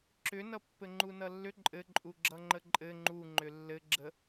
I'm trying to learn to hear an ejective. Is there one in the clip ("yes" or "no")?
yes